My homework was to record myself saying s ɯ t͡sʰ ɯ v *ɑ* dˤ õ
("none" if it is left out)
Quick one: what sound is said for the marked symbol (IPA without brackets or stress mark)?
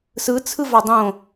ɑ